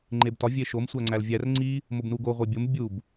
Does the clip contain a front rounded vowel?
no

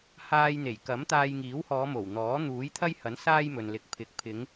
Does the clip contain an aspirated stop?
yes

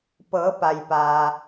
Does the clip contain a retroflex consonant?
no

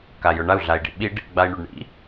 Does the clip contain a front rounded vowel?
no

